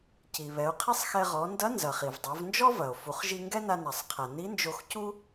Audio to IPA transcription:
ci˩βɛ˩˧o̯qʰi˥sˤxɛ˧ ʁɔ˩˧ndɐ˧˥ nzɐ˩χi˩vdˤo˩˧v nd͡ʒɔ˥vɐ˩o̯ fu˩˧χʒi˧ŋɡɛ˥na˧ na˩sˤqʰa˩ni˧˥nd͡ʒo˧x cu˥

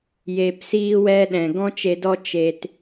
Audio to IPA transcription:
je˨psiː˦wɛ˦ ɗɛ̃˨ ɡɔ̃˦t͡ʃe˧dɔ˦ t͡ʃe˧t

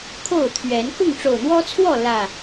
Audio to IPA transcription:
kʰo˥˨ʊ̯t̪ʰɥɛ˨˦n kʊ˥˨ŋʈ͡ʂo˨˩ʊ̯n̪wɔ˦t͡sʰwɔ˥˨ lä˨˩

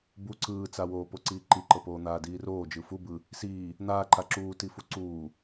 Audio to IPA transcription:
bu ǀɯːt͡sawoːpo ǀiːǃiǃɤpoː n̪aːdiːroː d͡ʒɯfu bɯ | siː | n̪aːǃa ǁuːtifu ǀuː

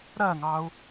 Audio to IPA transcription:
ɾɜŋɑu̯

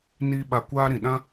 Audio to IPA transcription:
niː˧ɓa˨ kʷaː˧ ɾĩ˨ɗã˦

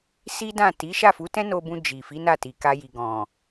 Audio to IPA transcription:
si˦dã˦˨ ti˨˦ ʃa˦˨fu˨˦tɛ̃˦ no˧bũ˧ d͡ʒi˨fi˨˦na˦˨ ti˨ka˧ji˨ ɡɔ̃˨

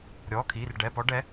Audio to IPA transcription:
ɾʲɔː˩˧˩kʰiː˩˧˩r ɖɛ˩˧˩pɔ˨˦ɖɛ˨˦

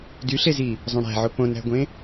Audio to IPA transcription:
dyɬezi | zˤõɽæ̤ʕo põnæ̤ɡʷẽ

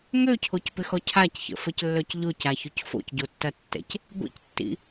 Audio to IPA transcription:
ŋøcʰocpɪxɔ cʰacçə̰fəclːœc ʎʊcaçʊc fo̰cɟotːɐtːɛ̰c | ɡʷḭctːḭ

